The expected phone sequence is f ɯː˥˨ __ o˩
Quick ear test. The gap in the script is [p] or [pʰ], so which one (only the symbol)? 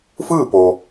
p